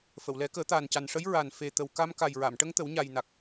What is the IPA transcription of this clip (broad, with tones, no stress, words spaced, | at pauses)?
fə˨˩˨wlɛ˨˩˦kəː˨˩˦ t̪aː˨˩nca˨˩nʂə˧˥j ɹa˨˩n fe˨˩ t̪ə˨˩wka˧m ka˨˩jɹa˨˩˨mʈə˧ŋt̪ə˨˩˦w ɲa˨˩jna˨˩k̚